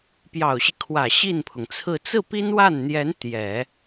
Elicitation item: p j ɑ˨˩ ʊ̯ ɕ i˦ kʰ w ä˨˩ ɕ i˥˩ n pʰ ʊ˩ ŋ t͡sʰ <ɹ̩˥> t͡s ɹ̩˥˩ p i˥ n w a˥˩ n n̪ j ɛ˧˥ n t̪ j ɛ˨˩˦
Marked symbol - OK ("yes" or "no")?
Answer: no